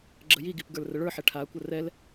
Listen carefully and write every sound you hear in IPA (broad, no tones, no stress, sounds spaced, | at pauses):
ɡ͡ǁ ə j i ɡ i p ɡ ə˞ l r ə ɭ ə˞ ħ ɛ ʈʰ aː kʷ ə r ɛ l